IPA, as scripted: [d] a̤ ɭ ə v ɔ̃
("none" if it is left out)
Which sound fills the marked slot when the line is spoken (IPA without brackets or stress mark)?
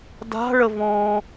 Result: d